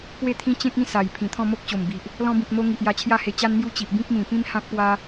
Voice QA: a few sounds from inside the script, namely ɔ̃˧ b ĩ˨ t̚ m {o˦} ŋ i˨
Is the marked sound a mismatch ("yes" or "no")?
yes